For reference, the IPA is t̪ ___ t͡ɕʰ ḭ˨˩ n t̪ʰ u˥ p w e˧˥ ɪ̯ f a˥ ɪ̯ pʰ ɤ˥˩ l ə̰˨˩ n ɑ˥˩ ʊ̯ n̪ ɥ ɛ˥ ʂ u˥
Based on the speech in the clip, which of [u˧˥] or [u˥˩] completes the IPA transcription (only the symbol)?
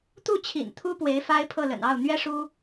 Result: u˥˩